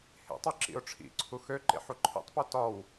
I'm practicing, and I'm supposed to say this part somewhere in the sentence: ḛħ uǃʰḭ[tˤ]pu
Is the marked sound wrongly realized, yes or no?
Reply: no